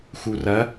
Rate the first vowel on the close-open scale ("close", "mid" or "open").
close